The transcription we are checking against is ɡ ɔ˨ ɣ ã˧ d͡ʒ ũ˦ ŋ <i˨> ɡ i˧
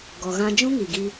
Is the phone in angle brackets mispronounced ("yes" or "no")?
no